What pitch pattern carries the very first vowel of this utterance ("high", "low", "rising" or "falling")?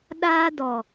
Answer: high